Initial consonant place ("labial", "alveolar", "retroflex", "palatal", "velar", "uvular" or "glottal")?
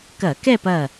velar